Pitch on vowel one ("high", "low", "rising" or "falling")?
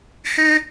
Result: high